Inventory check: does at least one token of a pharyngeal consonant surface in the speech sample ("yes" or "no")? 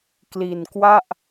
no